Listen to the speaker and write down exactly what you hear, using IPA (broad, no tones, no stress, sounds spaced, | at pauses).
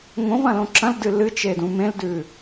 ŋ õ v ɐ̃ l õ ǁ ɐ̃ l d ɨ l ɨ t͡ʃ e d ũ m ẽ l d ʉ